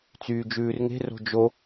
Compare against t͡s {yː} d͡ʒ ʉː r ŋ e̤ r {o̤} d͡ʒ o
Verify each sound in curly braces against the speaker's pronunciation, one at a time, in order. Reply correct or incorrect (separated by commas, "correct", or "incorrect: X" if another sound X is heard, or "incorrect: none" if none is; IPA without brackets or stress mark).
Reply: correct, correct